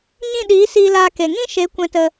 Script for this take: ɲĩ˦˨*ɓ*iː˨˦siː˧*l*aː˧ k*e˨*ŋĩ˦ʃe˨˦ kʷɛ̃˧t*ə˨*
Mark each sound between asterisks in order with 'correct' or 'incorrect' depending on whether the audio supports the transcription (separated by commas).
incorrect, correct, correct, incorrect